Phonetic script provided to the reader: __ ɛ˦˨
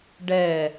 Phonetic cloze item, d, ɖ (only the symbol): ɖ